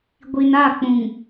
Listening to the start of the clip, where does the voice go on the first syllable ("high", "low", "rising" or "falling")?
low